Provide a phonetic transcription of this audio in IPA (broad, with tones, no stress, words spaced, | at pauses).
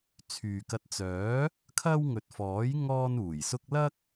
t͡sʰyː˨kɐ˧t̚ t͡sœː˨˥ | kʰɐ˥w ŋɵ˨t̚fɔː˨˥j ŋɔː˥nuː˨˩jsʊ˥k̚ lɐ˥k̚